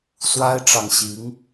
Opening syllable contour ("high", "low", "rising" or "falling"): high